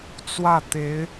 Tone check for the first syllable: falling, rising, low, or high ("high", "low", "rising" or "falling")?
falling